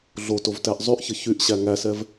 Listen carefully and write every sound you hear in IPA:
ɮotovtæʔ zˤyʔçə çyʔɕæ ŋæsɛv

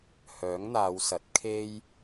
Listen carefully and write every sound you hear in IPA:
hœː˨˥ŋn̪aː˨˧wsɐ˨˥t̚ kʰe˥j

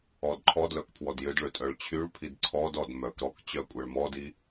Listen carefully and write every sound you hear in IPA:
ɔdǃʰɔdlœk pʰwɔdjʏdɭʏ tʼœɭt͡ɕʰyɭpʰid ǀʰɔdɔd mœk ɾɔk t͡ɕœkʷʼɛɭmɔdi

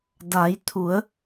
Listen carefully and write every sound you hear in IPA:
da˩˧jt̪ʰu˩˧ə̯

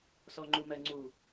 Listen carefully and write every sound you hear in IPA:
sɔŋ͡ǃumɜŋ͡ǀu

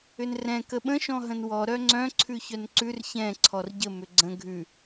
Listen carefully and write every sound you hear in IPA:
ʏnrɛ̃ kəɓə̃ ʃɔ̃ɦə̃nwɔ ɾœŋ͡ǀœ̃ ǀʰʉçœnǀʉr çɛ̃ ǀʰɔrɟə mʏɡ͡ǀə̃ ɡʱʉ

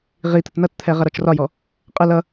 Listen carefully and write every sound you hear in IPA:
ʁit̪ət nʌtt̪ʰɛ ʁʌɾɔt͡ʃrɒjɔ | qʼə lʌ

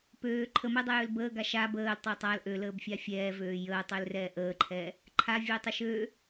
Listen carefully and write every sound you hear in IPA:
pøː ǃʰəmɛdˤəjøl bəːɡa ʃa bəːltˤɛ tˤal ʔøləːbfʲa fʲɛːvøː jəːtˤølrɛː ʔəːǃʰɛː | ǃʰavʲɛːtˤə ʃøː

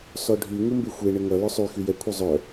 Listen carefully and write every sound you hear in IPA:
sɔɖʱy ŋumbexʷe ɳəŋʌ lœsˤy xyjɛ kʷʰœzˤœ

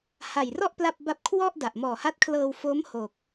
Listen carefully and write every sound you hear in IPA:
ha˨˩jrɔ˥˩ʔ pla˥˩p̚ba˥˩p̚ kʰwɔ˥˩ʔ da˨˩ʔmɔː˨˩ha˦˥t̚kʰlɤː˧w fo˦˥mho˨˩k̚

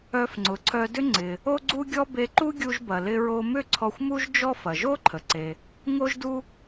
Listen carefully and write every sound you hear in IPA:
œ˧f ŋ͡ǀʊ˩ǀʰœ˧dʏ˥ ŋ͡ǀɪ˩ | o˥ɡ͡ǀu˥ɡʲɔ˥ be˧ǃu˥ɡʲu˧ʒbɐ˩ lɪ˧ ɹo˧mʏ˥ ǀʰɔ˧xʷmu˥ʒd͡ʒɔ˥ fɐ˩ʒo˥ǃʰə˩ ǀe˩ | ŋo˥ʒdu˥

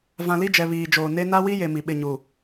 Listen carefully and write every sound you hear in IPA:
vã˨li˦d͡ʒɛ˨ βiː˨d͡ʒoː˨ ne˦ na˦wi˦je˨ mi˨ɓɪ˦˨ɲu˨

